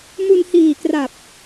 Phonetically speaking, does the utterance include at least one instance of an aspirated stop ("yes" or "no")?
no